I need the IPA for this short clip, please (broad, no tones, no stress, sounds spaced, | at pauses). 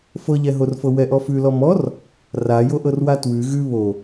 f ɤ ʎ ɛ ɦ o r f ɤ w ɛ ʔ ɔ f ʉ l ɔ m ɔ r | r a j o ʔ ɤ r w a t w ʉ ɣ ʉ β o